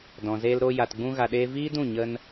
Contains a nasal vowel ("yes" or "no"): yes